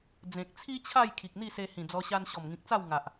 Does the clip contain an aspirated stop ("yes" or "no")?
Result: yes